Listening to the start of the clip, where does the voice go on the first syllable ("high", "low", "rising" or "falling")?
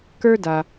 high